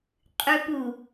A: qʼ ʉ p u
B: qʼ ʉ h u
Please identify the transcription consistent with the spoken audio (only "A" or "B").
A